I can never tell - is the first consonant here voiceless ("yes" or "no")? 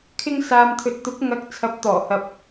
yes